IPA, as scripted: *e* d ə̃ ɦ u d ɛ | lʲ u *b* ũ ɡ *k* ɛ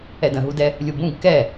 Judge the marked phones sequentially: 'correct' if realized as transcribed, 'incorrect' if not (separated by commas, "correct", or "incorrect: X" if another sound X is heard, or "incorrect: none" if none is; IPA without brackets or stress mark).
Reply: incorrect: ɛ, correct, correct